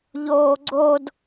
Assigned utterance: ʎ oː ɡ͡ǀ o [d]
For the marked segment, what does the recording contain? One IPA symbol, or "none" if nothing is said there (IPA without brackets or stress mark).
d